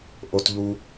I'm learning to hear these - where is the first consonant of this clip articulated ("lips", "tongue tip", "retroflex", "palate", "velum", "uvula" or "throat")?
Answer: throat